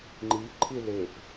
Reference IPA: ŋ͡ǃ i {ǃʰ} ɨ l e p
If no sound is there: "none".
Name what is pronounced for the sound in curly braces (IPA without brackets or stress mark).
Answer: ǃʰ